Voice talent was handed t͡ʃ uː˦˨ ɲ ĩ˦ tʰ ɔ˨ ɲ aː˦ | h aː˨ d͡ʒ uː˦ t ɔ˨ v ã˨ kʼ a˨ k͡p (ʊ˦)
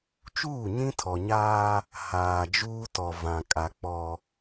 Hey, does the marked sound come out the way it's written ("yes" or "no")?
no